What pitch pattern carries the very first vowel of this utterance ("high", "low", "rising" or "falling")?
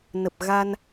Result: low